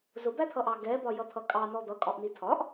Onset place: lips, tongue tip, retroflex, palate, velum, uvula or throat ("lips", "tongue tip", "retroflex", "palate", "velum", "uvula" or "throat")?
tongue tip